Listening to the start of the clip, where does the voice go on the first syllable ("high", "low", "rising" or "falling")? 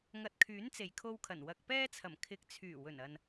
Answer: low